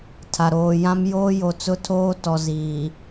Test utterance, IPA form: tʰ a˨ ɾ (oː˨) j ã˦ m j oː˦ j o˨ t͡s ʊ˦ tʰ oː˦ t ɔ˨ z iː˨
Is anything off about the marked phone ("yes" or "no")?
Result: no